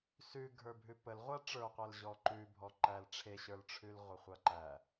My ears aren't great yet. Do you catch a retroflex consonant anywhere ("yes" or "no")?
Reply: yes